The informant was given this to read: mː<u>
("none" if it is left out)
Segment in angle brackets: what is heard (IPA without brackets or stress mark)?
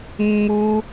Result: u